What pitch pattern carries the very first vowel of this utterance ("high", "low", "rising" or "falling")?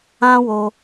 high